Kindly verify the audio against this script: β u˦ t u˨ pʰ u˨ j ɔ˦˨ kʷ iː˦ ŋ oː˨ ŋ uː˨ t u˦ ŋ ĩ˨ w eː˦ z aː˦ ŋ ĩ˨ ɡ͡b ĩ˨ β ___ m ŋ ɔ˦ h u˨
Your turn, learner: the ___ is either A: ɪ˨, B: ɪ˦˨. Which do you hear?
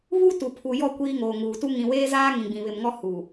A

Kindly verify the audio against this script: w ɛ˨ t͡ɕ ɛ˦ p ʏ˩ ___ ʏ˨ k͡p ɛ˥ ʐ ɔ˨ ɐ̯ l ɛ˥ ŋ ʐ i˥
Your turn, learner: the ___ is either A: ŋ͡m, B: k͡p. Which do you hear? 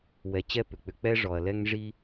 B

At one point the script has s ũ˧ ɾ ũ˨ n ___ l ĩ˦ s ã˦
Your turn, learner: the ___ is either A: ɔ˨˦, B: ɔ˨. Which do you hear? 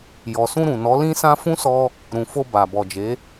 A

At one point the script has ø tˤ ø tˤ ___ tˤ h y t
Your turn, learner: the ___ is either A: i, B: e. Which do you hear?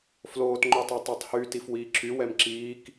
B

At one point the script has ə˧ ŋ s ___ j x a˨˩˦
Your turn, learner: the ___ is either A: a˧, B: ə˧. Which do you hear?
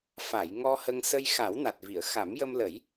B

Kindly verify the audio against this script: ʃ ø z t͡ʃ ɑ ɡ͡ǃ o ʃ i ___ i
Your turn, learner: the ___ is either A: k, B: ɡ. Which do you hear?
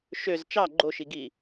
B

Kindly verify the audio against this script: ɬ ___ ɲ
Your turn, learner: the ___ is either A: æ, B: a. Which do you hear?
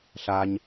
B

